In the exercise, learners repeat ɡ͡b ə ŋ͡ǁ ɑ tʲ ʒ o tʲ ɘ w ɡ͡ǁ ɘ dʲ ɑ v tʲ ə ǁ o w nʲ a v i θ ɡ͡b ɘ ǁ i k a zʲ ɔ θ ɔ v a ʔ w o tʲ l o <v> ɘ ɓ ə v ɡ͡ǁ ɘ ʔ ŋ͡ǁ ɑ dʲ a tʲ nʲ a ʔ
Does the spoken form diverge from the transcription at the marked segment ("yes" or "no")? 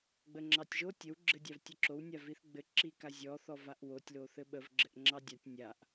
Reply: yes